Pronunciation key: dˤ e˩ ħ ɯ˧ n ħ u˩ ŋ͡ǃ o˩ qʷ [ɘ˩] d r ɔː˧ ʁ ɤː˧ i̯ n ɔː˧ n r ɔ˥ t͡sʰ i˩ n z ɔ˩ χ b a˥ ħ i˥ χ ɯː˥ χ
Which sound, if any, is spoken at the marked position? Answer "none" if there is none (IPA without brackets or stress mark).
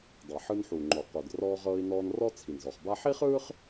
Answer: e˩